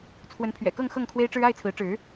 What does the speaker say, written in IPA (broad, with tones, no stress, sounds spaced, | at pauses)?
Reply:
t͡sʰ w ə˨˦ n pʰ ɥ ɛ̰˨˩ k ɤ˥˨ ŋ x ɤ˥˨ ŋ kʰ w e˦ ɪ̯ ʈ͡ʂ ɻ̩˦ a˥˨ ɪ̯ t͡sʰ ɹ̩˨˦ ʈ͡ʂ ɻ̩˨˦